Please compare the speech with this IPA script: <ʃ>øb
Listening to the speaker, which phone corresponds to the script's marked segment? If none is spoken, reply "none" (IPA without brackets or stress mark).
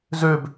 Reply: z